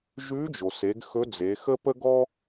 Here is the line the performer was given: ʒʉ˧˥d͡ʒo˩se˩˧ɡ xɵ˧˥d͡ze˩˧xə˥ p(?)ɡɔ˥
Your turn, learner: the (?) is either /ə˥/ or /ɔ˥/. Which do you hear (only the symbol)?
ə˥